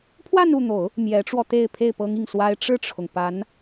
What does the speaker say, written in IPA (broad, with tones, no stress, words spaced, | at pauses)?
pʰwa˥˧nu˥˩n̪o˨˩˦ʊ̯ | mjɛ˧˥ʈ͡ʂwɔ˧t̪e˥˧ɪ̯ pʰe˥˩ɪ̯pɤ˥ŋi˥˩ŋswa˥ɪ̯ ʈ͡ʂɻ̩˥˩ʈ͡ʂʰʊ˩ŋ pa˧˥n